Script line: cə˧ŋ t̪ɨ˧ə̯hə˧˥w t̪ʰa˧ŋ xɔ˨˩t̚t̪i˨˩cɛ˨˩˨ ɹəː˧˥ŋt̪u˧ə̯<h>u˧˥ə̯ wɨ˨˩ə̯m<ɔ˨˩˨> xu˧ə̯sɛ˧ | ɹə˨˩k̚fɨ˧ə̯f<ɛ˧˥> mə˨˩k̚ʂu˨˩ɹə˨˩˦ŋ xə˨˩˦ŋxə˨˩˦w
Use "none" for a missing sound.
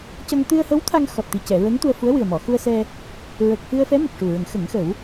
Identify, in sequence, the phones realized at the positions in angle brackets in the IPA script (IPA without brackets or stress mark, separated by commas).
f, ɔ˨˩˨, ɛ˧˥